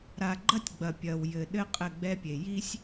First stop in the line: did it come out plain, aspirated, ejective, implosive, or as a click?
click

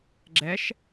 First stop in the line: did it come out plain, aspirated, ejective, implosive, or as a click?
click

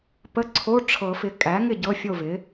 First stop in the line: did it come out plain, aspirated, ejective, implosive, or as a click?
plain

